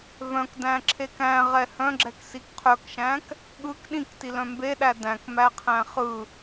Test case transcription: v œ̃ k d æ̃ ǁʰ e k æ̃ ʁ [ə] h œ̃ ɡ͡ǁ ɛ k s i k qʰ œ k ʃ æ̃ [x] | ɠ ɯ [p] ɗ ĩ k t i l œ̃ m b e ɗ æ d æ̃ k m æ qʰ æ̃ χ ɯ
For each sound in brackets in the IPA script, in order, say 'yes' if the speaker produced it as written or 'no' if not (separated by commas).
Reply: no, no, no